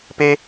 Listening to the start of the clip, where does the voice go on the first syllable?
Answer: high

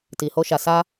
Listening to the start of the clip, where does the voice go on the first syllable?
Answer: low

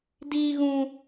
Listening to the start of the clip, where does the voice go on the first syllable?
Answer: high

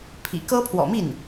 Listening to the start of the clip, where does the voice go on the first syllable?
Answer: low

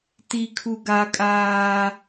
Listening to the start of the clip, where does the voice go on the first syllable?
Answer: high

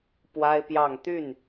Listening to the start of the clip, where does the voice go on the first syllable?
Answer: high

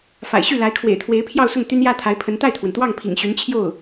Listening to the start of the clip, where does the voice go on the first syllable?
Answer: low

